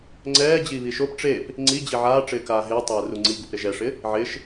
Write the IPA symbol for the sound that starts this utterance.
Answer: ŋ͡ǀ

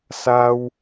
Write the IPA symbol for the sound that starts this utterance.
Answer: s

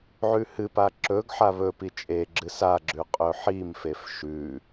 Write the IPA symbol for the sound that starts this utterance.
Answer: ʕ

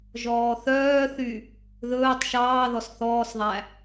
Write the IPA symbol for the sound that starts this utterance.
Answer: ʒ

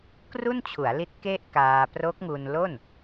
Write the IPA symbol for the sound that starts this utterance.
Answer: k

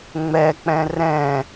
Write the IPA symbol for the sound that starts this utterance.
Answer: ŋ͡m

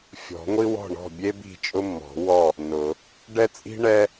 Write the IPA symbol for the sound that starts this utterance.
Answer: fʲ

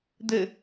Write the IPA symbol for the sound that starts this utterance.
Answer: d̪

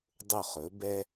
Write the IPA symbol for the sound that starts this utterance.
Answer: dˤ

